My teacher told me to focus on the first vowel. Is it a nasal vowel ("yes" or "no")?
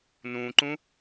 yes